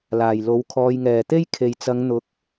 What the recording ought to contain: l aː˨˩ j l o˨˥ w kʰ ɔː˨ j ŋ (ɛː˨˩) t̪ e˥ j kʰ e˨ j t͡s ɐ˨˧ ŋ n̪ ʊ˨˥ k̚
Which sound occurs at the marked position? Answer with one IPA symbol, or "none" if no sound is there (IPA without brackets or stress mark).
ɛː˨˩